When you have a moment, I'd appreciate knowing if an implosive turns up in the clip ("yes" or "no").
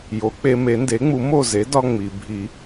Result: no